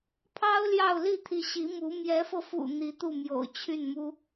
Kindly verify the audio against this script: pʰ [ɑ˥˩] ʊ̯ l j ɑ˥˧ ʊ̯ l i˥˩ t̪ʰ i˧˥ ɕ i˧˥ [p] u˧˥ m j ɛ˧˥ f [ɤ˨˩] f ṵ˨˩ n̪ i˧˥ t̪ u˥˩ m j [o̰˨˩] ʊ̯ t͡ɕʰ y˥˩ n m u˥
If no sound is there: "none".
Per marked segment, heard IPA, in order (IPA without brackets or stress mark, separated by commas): ɑ˥, m, ɤ˧, o̰˨˩